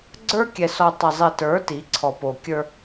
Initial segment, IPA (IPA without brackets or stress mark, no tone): ɡ͡ǀ